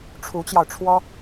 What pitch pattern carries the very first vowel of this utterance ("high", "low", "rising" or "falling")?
rising